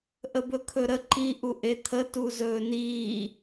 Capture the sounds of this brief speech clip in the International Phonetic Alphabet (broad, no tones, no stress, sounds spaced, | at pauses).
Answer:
ʔ ə b ɵ kʰ ɵ ɾ ə ǃ i ʔ u ʔ e t̪ʰ ə t u z ɵː n iː